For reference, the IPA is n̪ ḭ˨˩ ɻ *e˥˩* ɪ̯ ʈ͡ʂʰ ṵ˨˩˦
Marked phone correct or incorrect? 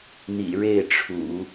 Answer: correct